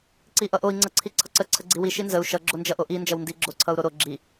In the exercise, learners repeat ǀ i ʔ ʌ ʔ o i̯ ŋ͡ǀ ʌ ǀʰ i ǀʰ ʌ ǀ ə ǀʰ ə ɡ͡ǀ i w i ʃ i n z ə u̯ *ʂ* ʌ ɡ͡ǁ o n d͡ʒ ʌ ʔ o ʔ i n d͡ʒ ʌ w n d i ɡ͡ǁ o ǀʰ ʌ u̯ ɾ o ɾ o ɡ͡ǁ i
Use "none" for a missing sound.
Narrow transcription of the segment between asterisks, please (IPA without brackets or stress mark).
ʃ